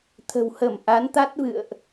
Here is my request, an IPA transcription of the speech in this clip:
t̪ʰ ə̤˨˩ w h ə˧˩ m ʔ a˨˦ n t̪ a˦˥ t̚ v ɨ̰˧˨ ə̯ ʔ

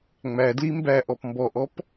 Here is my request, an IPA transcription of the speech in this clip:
ŋ͡m æ d l i m b æ ʔ ɔ p m b ɔ ʔ ɔ p

